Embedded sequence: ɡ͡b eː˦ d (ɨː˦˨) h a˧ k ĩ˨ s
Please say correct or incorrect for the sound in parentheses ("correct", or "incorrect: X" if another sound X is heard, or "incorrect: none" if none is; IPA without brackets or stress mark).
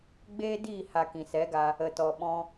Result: incorrect: iː˦˨